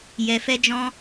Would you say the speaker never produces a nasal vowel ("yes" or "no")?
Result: no